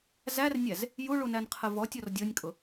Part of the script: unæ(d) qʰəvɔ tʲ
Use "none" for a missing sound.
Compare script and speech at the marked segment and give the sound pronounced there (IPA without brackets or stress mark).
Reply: n